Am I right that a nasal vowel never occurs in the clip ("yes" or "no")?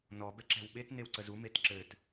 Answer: yes